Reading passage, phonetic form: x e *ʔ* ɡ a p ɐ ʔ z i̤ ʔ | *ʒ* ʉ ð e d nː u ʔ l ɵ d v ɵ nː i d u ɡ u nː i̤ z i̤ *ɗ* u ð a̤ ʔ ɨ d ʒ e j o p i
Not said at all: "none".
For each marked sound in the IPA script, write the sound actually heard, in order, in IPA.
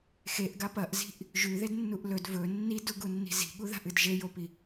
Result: ʔ, ʒ, ɠ

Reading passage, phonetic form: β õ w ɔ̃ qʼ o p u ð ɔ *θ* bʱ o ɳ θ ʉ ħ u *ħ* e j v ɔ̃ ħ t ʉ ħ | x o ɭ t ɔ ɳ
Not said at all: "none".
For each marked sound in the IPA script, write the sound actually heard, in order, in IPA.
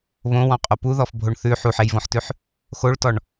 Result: f, ħ

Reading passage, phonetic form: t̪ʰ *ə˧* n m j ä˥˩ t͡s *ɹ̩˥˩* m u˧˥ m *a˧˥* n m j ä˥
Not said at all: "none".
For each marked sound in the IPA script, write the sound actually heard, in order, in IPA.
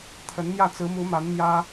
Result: ə˧˥, ɹ̩˧˥, a˧˥

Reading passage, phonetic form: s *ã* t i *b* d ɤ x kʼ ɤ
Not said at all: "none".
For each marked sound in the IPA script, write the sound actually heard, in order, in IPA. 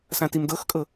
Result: ã, m

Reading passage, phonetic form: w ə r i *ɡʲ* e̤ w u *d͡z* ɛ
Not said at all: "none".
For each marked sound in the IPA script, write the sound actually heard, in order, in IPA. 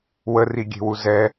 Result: ɡʲ, z

